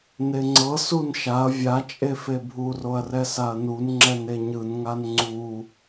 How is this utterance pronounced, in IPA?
n e ŋ͡ǀ ɤ s u n ʃ a ɐ̯ vʲ a t͡ʃʼ e f e bʱ u r o ɐ̯ r ɛ s a ɐ̯ n u n ŋ͡ǁ ɛ n e ɲ ɯ n ŋ a n ŋ͡ǀ u

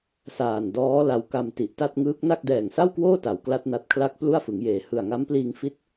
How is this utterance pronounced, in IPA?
s aː˨˩ n d ɔː˦˥ l a˧ w k a˧ m t i˨˩ ʔ t a˥˩ t̚ ŋ ɯː˦˥ k̚ n a˥˩ k̚ d ɛː˨˩ ŋ s a˥˩ w k w oː˥˩ t a˨˩ w k l a˥˩ t̚ n a˦˥ t̚ kʰ l a˥˩ k̚ p l u˥˩ a̯ f ɯ˩˦ ŋ j eː˨˩ h ɯ˨˩ a̯ ŋ a˦˥ m p l iː˧ ŋ f i˥˩ t̚

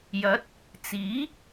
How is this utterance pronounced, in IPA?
j ɐ˨˥ t̚ | t͡s iː˨˥

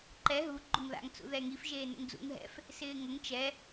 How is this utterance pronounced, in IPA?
ǃ ɛ ɦ u ɡ͡ǃ ʊ ŋ ð a̰ ŋ t͡s ṵ ð ɛ ŋ i f ʒ eː n ṵ ŋ d͡z ṵ ŋ ɦ ɛ̰ f | s ɪː ŋ ʊ ŋ t͡ʃ ɛ

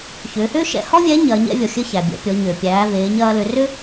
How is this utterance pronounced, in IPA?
ç ʏː˩˧ h ʏː˥ ʃ ɛ̰˧ h ɔ˥ vʲ ɛ˧˥ ɲ ɐː˩˧ ɲ ɛ̰˥ vʲ ɔ˩ xʲ ɘ˧ ç æ˩ bʲ ɛ̰˩˧ pʲ ɔ˩˧ ɲ ʏː˩ pʲ æː˩˧ v eː˩˧ ɲ ɐː˧ l ʏ˩˧ r ʏ˥

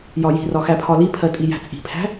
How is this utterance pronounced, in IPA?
j ɒ j i̤ r ɒ x æ pʰ ɒ l i pʰ ɜ tʼ i j æ̤ t͡sʼ i̤ pʰ æ̤

